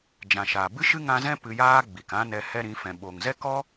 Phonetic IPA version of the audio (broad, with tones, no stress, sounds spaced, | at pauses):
d͡ʒ ã˨ ʃ a˨ b ɨ˦ ʃ ɨ˦ ŋ ã˧ z ɛ̃˦ p ɨ˧ j aː˦ ɡ͡b i˨ k ã˦ n ɛ˧ h ɛ˦ ɾ ĩ˨˦ f ɛ̃˨ ɓ o˨ ŋ z ɛ˦ k ɔ˦